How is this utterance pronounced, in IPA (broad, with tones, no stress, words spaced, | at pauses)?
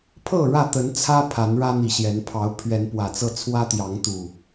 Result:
pʰɤ˥˨ ɻä˥˨t̪ə˨˦n t͡sʰä˦ pʰa˨˦nɻä˦n̪i˨˩ɕjɛ˨˦n pʰɑ˨˦ʊ̯pʰɥɛ˨˦npwä˨˩t͡sɤ˥˨ t͡sʰwä˦t̪jɑ˨˦ŋt̪u˨˩